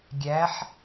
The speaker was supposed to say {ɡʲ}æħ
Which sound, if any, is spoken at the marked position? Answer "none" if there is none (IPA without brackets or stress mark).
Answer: ɡʲ